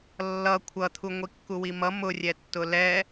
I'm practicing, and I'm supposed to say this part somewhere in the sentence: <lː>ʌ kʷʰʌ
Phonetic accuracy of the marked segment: correct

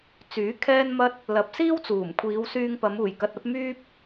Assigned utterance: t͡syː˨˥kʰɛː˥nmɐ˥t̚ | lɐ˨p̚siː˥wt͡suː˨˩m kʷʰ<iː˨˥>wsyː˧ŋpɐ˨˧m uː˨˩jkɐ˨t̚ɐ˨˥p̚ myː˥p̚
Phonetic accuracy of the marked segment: incorrect: iː˨˧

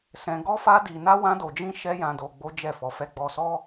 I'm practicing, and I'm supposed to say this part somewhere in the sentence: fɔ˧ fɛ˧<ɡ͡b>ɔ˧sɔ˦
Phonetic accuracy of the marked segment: correct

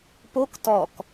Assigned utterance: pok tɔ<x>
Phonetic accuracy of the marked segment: incorrect: k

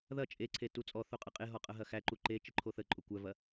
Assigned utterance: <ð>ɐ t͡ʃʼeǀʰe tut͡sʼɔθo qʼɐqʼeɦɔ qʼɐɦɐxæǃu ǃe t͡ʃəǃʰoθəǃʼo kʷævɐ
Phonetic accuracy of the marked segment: correct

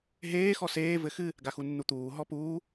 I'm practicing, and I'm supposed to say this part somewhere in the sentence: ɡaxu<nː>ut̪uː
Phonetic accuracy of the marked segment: correct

